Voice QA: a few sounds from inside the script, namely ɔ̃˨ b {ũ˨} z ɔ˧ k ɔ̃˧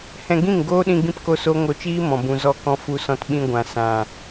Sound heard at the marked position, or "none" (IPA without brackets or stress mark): ũ˨